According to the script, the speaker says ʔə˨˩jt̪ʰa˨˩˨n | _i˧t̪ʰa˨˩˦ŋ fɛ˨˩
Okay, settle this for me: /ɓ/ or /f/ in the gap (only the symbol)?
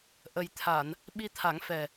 ɓ